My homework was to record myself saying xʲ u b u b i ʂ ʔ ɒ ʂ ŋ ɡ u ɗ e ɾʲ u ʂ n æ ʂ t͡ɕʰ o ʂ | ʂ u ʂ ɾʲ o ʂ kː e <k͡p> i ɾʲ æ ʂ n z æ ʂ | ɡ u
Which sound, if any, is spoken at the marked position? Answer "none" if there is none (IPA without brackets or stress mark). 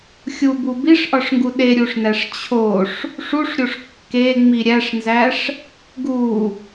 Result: ŋ͡m